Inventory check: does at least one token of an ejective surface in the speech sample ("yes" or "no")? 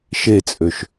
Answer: yes